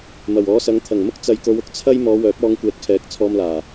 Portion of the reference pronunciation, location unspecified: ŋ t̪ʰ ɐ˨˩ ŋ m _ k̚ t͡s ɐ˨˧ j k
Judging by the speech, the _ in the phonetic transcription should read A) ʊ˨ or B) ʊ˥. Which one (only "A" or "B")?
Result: B